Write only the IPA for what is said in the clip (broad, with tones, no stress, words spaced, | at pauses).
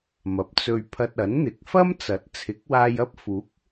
mɐ˨˥p̚t͡sɵ˧ɥ pʰɐ˧t̚ɐ˨˥nn̪ɪ˨˥k̚ fɐ˥mt͡sɐ˨˥t̚ t͡sʰɪ˨˥k̚waː˧jɐ˥p̚ fuː˨˥k̚